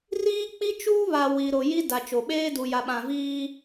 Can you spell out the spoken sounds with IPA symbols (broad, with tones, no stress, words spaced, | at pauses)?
riː˦k͡pi˦t͡ʃuː˦βa˨ wi˨ɾo˨ji˦ da˨t͡ʃo˨ɓeː˦ du˨ja˨ɓã˨viː˦